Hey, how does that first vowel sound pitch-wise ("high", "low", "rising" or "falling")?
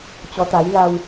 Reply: rising